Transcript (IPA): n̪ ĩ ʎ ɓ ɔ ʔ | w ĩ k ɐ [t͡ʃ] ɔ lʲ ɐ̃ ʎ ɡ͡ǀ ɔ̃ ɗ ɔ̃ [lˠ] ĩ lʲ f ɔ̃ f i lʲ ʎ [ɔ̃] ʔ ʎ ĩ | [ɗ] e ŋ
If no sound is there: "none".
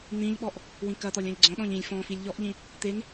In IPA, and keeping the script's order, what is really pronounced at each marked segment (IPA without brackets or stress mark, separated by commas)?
t̪, ʎ, ɔ, t̪